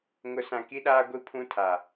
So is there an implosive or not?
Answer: yes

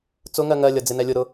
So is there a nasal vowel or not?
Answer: no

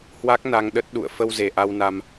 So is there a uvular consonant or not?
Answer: no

